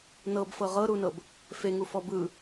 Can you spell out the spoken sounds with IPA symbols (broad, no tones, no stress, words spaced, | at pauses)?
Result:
nɤbfɤ ʁɤɾunɤb | feŋufɔ bɯ